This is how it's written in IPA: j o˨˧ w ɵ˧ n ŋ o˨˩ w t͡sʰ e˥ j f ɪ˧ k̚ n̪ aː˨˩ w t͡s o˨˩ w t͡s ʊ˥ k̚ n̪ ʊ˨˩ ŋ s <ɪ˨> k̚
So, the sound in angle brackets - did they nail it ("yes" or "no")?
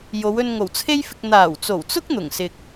yes